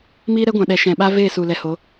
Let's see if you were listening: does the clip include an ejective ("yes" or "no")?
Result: no